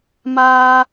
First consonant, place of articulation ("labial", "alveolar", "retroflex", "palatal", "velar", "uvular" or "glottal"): labial